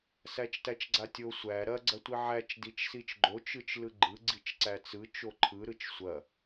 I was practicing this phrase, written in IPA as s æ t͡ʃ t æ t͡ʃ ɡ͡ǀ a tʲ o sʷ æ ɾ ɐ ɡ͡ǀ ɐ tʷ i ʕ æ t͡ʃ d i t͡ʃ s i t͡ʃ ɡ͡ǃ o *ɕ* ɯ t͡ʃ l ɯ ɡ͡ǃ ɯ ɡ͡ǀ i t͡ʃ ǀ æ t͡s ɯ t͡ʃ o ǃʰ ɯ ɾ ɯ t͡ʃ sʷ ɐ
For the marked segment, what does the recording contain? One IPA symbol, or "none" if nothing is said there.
t͡ʃ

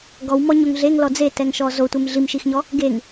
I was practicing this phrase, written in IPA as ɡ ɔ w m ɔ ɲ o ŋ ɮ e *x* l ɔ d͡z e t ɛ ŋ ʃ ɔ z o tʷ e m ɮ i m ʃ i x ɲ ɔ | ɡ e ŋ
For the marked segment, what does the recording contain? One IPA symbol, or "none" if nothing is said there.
ŋ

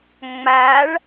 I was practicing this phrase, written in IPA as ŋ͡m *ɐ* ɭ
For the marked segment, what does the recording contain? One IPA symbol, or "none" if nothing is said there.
a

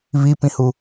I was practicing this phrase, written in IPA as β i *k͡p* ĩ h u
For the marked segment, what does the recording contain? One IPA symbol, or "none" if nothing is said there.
p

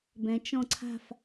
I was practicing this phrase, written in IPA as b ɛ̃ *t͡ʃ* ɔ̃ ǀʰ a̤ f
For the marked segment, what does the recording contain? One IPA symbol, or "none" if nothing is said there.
t͡ʃ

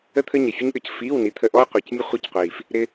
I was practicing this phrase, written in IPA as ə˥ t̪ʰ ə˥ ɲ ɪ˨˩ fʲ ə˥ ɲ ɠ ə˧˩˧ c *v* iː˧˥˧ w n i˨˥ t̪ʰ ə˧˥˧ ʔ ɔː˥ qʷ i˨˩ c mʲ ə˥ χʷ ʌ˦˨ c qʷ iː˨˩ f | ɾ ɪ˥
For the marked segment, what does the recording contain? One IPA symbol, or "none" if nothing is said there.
f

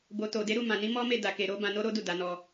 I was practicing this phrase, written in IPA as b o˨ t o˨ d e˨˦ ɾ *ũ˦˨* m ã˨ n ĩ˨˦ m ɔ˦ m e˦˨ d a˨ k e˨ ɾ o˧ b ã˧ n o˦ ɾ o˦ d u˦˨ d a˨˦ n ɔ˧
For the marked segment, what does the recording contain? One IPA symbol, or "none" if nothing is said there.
u˦˨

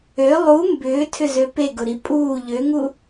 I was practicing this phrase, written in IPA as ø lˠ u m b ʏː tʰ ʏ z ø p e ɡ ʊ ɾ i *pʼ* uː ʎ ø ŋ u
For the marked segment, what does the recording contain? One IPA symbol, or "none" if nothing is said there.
pʼ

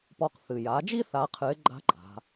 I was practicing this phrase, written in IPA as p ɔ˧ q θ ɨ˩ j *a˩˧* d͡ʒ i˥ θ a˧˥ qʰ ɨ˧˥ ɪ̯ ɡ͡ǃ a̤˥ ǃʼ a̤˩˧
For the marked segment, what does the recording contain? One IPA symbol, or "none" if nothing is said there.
a˩˧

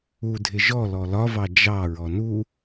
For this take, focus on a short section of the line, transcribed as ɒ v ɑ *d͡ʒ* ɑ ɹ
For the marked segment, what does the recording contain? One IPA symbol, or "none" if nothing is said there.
d͡ʒ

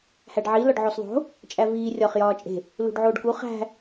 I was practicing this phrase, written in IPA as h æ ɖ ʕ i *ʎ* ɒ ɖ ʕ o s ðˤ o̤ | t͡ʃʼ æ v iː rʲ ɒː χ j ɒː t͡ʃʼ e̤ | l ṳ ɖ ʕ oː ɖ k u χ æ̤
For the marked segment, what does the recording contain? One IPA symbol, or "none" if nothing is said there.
l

